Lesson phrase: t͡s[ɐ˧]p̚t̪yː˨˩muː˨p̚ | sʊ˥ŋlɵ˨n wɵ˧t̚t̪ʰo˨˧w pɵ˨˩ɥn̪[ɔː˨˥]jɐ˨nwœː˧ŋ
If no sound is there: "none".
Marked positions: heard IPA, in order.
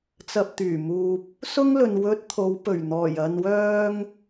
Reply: ɐ˧, ɔː˨˩

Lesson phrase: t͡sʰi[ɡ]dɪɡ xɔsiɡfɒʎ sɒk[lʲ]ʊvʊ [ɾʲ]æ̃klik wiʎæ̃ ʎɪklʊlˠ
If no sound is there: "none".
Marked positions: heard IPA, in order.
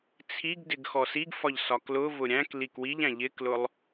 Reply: ɡ, l, ɾʲ

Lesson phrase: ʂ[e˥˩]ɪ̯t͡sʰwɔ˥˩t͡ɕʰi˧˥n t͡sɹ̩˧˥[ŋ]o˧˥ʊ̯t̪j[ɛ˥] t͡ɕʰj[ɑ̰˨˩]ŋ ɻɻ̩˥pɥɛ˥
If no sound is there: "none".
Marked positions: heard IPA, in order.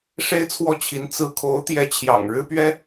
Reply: e˥, kʰ, ɛ˧˥, ɑ̰˨˩

